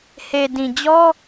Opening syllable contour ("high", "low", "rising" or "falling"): low